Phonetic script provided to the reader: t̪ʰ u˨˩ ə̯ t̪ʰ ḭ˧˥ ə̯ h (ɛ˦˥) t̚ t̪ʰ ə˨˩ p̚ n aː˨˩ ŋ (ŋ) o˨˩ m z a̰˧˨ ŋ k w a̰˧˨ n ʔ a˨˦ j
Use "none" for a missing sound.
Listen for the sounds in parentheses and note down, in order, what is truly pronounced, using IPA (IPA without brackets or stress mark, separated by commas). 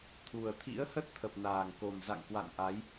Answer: ə˦˥, k